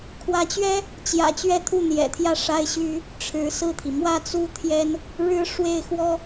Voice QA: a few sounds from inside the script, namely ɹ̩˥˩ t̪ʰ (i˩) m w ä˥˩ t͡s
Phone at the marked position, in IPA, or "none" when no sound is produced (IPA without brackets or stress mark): i˩